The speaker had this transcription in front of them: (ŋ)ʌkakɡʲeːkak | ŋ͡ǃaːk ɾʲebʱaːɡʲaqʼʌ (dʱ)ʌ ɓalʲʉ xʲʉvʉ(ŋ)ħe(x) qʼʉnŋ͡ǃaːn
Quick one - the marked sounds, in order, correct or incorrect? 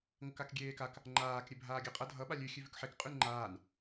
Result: correct, correct, incorrect: k, incorrect: k

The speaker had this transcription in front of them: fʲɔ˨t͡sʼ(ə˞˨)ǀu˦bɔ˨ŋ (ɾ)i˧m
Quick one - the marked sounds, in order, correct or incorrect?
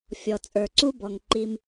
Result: correct, incorrect: ǃ

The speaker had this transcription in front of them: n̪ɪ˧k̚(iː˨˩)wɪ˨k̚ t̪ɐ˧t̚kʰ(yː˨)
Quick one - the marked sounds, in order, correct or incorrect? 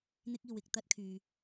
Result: incorrect: iː˨, correct

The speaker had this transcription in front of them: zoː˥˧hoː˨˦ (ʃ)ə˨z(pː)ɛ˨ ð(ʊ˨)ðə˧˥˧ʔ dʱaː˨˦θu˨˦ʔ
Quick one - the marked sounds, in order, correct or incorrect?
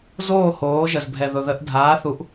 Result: incorrect: ʒ, incorrect: bʱ, correct

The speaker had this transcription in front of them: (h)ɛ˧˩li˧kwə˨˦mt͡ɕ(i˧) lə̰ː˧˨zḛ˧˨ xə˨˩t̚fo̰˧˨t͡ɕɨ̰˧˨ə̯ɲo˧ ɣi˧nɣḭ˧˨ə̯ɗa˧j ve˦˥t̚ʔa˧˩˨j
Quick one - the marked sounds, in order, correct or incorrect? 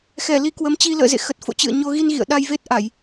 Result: incorrect: x, correct

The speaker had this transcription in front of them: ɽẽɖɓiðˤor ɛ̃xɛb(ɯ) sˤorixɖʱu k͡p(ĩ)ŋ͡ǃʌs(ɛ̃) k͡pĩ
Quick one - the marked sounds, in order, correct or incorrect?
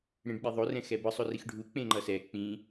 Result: correct, incorrect: ẽ, incorrect: ɛ

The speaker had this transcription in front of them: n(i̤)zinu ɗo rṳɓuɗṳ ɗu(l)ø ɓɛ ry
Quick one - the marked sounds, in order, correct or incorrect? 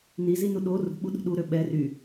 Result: incorrect: i, incorrect: ɾ

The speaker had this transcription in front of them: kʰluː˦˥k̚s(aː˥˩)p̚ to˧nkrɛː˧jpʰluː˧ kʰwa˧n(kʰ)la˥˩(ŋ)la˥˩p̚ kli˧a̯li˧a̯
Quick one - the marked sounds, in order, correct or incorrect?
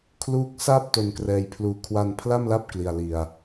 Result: correct, incorrect: pʰ, incorrect: m

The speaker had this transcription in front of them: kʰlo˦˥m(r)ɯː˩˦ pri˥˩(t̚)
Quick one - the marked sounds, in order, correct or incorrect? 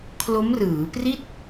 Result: correct, correct

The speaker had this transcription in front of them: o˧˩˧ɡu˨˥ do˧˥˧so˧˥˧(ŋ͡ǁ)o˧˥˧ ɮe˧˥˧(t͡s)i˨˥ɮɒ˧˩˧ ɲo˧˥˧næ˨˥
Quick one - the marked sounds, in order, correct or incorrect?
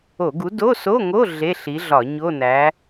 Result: incorrect: ŋ, incorrect: ɬ

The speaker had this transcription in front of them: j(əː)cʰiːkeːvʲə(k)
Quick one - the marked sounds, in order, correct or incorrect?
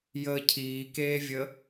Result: correct, incorrect: none

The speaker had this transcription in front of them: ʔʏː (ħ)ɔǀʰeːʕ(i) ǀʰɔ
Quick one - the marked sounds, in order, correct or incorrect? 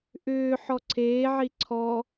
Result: correct, correct

